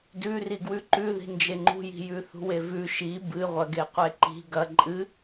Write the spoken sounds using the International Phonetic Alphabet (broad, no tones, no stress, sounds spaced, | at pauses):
d ʉ r i ɡ w ʉ ǃ ʉ ð i̤ n d͡ʒ e ŋ͡ǃ ṳ j i̤ j ʉ θ ṳ w e v ʉ ʃ i b ɨ ʁʷ ɐ ɡ e qʷ e ǃ i̤ ɡ ɐ ǃʼ ɨ